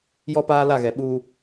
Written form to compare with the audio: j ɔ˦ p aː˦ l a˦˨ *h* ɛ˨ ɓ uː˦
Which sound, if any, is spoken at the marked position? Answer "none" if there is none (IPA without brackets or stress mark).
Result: ɣ